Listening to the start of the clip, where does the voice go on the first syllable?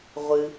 low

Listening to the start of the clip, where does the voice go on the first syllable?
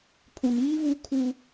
low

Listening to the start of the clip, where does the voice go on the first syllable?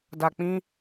low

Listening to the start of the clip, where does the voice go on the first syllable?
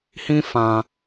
high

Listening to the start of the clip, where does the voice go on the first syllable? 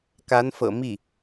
rising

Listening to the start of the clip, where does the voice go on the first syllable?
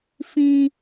high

